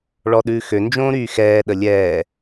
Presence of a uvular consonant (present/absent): absent